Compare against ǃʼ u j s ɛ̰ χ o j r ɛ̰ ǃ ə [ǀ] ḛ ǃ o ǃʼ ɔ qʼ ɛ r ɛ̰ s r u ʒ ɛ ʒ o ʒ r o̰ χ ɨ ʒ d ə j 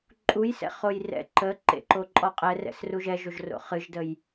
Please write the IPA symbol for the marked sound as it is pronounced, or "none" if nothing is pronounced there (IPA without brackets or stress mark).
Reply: ǃ